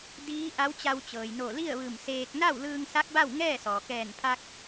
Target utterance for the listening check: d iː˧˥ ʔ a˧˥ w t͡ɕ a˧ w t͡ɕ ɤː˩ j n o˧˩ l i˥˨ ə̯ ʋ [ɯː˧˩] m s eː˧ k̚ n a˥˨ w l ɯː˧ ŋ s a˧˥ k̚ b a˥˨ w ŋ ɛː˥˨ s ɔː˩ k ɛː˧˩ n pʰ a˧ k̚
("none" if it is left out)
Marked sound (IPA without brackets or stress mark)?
ɯː˧˩